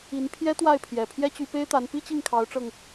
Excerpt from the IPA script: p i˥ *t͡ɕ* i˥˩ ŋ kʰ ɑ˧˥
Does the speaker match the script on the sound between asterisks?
yes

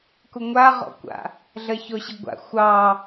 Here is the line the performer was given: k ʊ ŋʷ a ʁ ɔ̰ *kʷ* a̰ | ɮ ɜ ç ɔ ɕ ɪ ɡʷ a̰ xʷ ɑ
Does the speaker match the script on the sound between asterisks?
yes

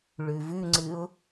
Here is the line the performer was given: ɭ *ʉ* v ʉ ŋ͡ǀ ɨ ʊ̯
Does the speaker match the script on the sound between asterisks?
yes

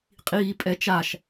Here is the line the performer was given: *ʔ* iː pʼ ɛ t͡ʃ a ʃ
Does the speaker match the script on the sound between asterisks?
no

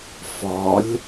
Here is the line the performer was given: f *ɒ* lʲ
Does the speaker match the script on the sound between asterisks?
yes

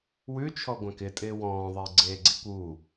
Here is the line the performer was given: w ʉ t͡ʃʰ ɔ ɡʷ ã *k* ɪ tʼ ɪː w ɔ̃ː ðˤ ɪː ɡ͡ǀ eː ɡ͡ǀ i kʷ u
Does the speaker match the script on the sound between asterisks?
yes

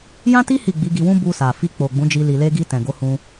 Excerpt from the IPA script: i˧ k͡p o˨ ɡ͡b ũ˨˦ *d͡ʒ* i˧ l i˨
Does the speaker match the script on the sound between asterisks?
yes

